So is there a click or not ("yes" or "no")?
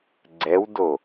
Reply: yes